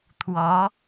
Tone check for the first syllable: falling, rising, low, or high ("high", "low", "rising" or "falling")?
rising